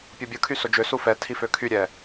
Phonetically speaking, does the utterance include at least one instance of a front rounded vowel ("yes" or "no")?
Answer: yes